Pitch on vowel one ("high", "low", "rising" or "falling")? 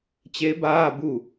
rising